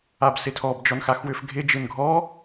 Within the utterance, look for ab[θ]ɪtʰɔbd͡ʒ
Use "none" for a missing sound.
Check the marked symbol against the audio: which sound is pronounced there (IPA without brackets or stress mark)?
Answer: s